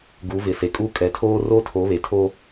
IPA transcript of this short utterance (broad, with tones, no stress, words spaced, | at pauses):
ɡu˨˦vɪ˨se˨kʼu˦ kʼɛ˨tʰoː˦ro˦ tʰo˨˦βe˨tʰo˦